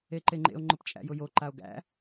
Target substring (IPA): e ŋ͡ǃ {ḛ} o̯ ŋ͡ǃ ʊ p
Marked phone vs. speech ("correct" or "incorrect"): correct